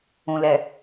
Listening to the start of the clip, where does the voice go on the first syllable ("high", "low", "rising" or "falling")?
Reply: low